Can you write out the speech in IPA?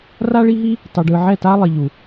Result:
r a˦ ɭ i˦ ɦ i˦ | tˤ ɯ˨ ɖ ɯ˨ ʕ ɛ˦˨ t a˦ lˠ i˨ ʎ u˨

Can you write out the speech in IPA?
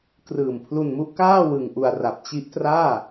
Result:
k r ɯː˨˩ m pʰ l u˧ n m u˦˥ ʔ k aː˥˩ w ɯ˧ ŋ ʔ u˧ a̯ r a˨˩ p̚ t͡ɕ i˦˥ ʔ t r aː˥˩

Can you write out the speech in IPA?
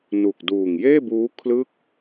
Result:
n u˨˩ k̚ d uː˨˩ ŋ j eː˥˩ b uː˦˥ kʰ l ɯ˥˩ k̚

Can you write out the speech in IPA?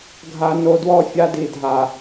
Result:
ɡʱ a˨ n o˨ d w ɔ˦ fʲ a˦ d i˨ dʱ a˨

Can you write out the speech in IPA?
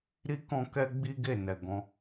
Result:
ɾ i˦ k ɔ̃˦ k ɛ˦ ɡ͡b i˦ ɡ e˦˨ n ɛ˨ ɡ ɔ̃˧

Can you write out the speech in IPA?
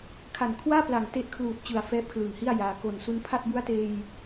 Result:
kʰ a˨˩ n kʰ w aː˥˩ p l a˨˩ ŋ t e˦˥ ʔ kʰ l uː˨˩ t̚ t͡ɕ ɯ˨˩ a̯ f ɛː˦˥ p̚ kʰ l ɯ˨˩ ŋ h i˥˩ a̯ j aː˧ k o˨˩ n s u˦˥ n pʰ a˥˩ t̚ b u˦˥ a̯ t eː˧ j

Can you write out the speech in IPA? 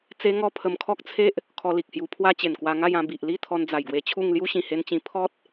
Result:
t͡s e˧ ŋ ɔ˧ pʰ ə˧ m kʰ ɔ˦ k̚ t͡sʰ e˦ ʔ | kʰ ɔ˧ l i˨ k̚ h j u˧ pʰ w a˦ t͡ɕ e˨˩ n k w a˧ ŋ a˥˧ j ã˧ b i˨ ʔ l i˥˧ t̪ʰ ɔ˧ n d͡z a˨˩ j ɡ w e˧ t͡ɕʰ u˥˧ ŋ l j u˦ ɕ ĩ˨˩ h e˧ n t͡ɕ ĩ˧ pʰ ɔ˦ t̚

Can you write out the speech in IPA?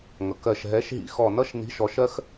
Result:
ŋ ʌ˩ k ɜ˧˩ ʃ ɦ ɛ˨˥ ʃ ɦ ḭ˧ x ɔ˧˩ n ʌ˥ ʃ n i̤˨˥ ʃ ɔ˩˧ ʃ ɜ˥ x

